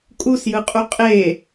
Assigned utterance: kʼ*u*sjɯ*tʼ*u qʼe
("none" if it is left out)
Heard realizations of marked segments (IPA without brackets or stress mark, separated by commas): u, qʼ